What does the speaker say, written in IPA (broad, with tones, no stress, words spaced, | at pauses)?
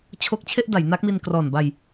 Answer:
t͡ɕʰo˦˥k̚t͡ɕʰe˥˩ʔ da˩˦jna˦˥k̚mi˧n krɔː˨˩nba˧j